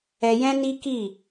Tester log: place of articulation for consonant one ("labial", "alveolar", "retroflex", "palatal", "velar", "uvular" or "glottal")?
palatal